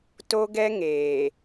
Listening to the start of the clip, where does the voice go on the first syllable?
high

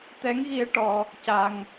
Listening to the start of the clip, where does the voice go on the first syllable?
rising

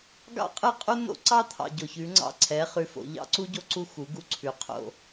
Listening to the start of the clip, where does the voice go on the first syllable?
high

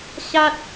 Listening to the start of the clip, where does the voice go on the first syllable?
high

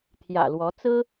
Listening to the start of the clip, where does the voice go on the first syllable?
low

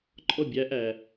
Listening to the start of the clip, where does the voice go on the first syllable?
falling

